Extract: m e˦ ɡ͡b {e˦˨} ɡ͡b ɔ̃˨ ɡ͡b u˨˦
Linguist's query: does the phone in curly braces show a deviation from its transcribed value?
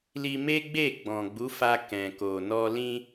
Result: no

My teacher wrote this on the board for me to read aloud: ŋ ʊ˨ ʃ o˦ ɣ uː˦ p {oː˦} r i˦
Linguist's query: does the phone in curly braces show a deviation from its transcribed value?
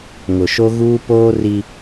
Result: no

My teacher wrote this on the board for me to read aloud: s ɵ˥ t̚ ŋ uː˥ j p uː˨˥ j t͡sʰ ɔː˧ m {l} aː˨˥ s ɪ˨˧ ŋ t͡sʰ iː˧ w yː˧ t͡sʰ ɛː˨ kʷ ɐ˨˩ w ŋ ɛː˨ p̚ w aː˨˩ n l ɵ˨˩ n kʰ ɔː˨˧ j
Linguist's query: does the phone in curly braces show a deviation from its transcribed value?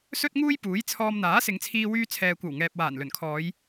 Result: yes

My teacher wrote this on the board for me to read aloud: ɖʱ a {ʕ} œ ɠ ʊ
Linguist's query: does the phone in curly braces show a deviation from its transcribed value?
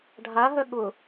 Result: yes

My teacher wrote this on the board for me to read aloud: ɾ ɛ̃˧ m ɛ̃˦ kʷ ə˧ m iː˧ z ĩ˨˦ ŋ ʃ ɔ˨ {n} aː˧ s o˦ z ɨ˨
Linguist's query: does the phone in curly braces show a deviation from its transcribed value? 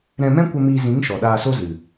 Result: yes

